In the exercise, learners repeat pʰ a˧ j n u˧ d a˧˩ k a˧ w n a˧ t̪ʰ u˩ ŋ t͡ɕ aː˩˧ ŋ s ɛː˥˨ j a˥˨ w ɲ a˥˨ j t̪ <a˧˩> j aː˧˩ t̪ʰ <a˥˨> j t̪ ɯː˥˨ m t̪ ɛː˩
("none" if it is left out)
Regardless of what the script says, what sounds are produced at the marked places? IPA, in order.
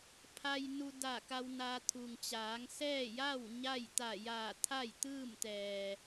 a˧˩, a˥˨

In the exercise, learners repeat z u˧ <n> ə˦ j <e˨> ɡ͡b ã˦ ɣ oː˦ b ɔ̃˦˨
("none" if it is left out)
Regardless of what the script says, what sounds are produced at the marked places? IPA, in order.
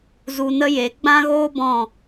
n, e˨˦

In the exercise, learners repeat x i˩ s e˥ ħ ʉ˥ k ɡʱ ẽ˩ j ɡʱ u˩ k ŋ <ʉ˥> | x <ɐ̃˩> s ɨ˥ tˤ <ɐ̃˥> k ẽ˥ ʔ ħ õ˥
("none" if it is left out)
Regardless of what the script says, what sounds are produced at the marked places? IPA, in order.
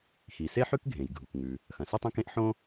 ʉ˩, ɐ̃˩, ɐ̃˥

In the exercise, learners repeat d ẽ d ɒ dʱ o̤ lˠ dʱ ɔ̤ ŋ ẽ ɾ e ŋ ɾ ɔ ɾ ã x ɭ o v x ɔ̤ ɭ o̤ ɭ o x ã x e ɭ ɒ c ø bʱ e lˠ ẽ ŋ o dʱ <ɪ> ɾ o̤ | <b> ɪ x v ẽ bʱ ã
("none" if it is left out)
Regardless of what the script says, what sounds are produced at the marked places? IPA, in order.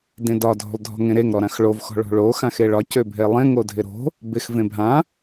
ɪ, b

